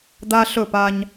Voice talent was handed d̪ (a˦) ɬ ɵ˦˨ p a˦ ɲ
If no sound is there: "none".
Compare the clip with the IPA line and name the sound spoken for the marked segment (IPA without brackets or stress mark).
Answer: a˦